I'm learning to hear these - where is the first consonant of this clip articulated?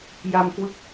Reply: palate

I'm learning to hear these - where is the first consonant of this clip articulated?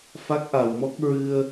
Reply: lips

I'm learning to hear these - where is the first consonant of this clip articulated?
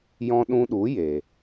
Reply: palate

